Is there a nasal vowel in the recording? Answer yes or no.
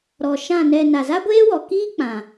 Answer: yes